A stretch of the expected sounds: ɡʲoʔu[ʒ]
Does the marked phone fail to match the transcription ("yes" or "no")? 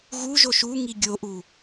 yes